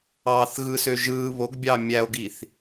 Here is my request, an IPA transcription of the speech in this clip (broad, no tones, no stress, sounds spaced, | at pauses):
ɑ θ ɣ ɯ s ø ʒ ɯ β o ɡ bʲ ɑ mʲ æ o̯ ɡ i θ